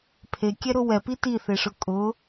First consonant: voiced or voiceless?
voiceless